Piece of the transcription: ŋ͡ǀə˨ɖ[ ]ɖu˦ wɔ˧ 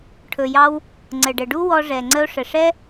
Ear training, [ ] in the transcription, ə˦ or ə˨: ə˨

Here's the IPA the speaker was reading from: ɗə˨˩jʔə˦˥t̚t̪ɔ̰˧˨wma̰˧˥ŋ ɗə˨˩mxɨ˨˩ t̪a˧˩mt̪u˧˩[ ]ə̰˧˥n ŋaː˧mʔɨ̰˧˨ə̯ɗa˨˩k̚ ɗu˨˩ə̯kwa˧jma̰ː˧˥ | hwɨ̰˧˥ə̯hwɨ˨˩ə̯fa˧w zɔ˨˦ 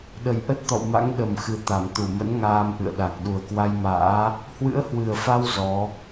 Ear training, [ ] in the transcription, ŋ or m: m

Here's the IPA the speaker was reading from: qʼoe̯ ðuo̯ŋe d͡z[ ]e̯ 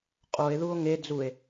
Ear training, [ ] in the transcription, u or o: u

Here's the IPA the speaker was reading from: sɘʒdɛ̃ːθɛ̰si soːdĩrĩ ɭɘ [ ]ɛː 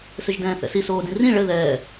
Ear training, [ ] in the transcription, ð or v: ð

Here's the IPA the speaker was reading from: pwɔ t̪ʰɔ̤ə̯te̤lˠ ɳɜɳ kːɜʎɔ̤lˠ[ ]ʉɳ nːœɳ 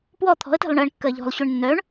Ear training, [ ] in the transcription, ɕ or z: ɕ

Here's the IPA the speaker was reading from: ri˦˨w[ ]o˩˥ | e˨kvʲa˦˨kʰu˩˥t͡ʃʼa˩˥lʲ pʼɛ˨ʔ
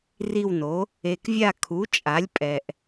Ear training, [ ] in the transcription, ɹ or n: n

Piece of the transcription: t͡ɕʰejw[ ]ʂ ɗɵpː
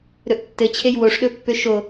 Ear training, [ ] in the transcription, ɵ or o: o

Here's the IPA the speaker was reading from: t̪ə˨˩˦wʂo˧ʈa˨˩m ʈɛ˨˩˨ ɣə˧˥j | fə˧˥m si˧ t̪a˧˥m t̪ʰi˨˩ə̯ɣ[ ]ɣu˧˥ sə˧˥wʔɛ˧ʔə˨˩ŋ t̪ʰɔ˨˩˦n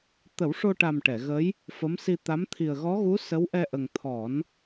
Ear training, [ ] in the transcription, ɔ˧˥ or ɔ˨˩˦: ɔ˧˥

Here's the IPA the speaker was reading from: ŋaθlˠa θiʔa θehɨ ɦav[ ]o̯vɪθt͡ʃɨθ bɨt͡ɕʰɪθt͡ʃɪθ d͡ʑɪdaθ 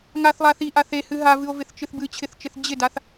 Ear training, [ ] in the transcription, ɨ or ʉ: ɨ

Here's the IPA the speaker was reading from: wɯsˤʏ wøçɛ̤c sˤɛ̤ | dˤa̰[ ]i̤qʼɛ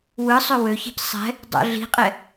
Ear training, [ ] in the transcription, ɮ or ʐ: ɮ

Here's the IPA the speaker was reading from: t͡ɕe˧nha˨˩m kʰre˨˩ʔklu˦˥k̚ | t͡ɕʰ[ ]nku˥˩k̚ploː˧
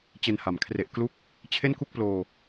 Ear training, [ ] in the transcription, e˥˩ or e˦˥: e˥˩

